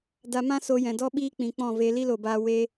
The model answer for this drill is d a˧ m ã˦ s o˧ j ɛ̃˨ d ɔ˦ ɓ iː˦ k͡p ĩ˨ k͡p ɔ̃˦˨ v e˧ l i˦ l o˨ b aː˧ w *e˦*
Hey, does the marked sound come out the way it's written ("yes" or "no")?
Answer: no